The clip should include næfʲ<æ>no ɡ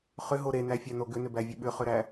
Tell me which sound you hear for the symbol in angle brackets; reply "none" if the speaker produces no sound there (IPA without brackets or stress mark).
æ